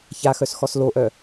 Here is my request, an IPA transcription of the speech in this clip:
ç a x œ s x ɔ s l o ʔ œ

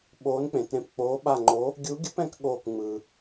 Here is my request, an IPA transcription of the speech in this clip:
ɓ oː˧˥ n k͡p ẽ˨ t ɾ ẽ˦˨ p k͡p oː˧˥ ɓ a˦˨ ŋ͡ǃ o˧˥ | ɡʲ u˧˥ ɡʲ ɯ˧˥ p ɛ̃˧˥ k ɠ oː˦˨ k ŋ͡m ɯː˨

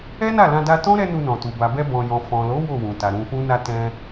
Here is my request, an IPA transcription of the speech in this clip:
ɛ˦ n a˦˨ l ã˧ d a˧ t ɔ̃˦ ɾ ɛ˦ n u˧ n ɔ̃˨ t u˨ b a˨ b ɛ˧ b ɔ̃˨ j ɔ̃˨ f ɔ̃˨ l o˨˦ w o˦˨ w ũ˨ t a˨ ɾ ũ˧ f ũ˦ n a˦ t ɛ̃˦

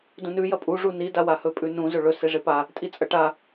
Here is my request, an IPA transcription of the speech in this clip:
d ũ n ʉ j ɐ pʼ u ʐ u n i d a w a h ɵ pʼ ʉ n ũ z ɵ ɭ ɵ s e ʐ e p a | tʼ i t͡sʼ ɐ ʈ a

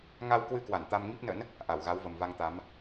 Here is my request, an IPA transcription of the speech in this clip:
ŋ a˧ w k w ɨ˧ k w a˧˩ n t̪ a˧ m ŋ i˦˥ p̚ n ə̰˧˥ n | ʔ a˧˩ w ɣ a˨˦ w v ə˨˩ m v a˧ ŋ t̪ a˨˦ m

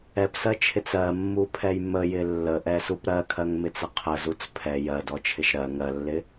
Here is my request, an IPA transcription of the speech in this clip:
ɛ p s ɜ t͡ʃʰ ɪ t͡s ɜ mː u pʰ ɛ j m ə j ɪ lː ə ʔ ɛ s u p ɾ ɜ kʰ ɜ ŋ m ɪ t͡s ə qʰ ə z u t͡s pʰ ɛ j ɜ d ɔ t͡ʃʰ ɪ ʃ ɾ ɜ ŋ ɜ lː ɪ

